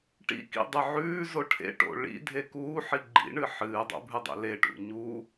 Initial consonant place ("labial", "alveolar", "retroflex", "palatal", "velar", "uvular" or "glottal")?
retroflex